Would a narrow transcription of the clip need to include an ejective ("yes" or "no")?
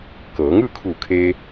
no